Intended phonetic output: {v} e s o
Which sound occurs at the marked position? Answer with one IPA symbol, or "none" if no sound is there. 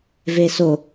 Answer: v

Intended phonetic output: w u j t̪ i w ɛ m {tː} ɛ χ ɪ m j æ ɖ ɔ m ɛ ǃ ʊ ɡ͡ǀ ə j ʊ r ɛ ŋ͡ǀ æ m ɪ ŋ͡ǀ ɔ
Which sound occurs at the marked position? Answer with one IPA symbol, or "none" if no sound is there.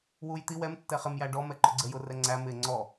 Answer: tː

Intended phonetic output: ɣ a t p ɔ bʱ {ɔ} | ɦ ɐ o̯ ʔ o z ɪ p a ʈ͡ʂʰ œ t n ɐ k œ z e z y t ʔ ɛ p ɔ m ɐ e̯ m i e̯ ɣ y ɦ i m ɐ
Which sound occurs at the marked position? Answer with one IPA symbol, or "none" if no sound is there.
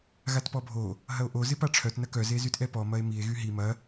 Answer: o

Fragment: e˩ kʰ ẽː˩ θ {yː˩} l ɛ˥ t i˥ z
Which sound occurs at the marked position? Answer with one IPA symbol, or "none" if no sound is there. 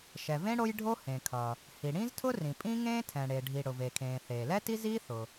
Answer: eː˩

